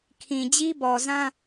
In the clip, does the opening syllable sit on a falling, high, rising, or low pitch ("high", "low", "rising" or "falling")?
low